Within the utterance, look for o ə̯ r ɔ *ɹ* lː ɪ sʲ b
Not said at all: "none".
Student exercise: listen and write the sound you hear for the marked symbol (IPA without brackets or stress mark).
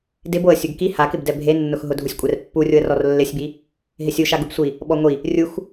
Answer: r